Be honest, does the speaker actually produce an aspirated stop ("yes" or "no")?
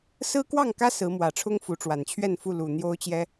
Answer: yes